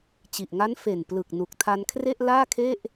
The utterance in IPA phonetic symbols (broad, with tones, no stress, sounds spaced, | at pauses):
t͡ɕ i˨˩ ʔ ŋ a˦˥ n f e˨˩ n p l ɯ˨˩ k̚ n u˨˩ k̚ tʰ a˧ n kʰ r e˥˩ ʔ l aː˥˩ kʰ e˥˩ ʔ